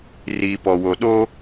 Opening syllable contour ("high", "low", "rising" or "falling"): low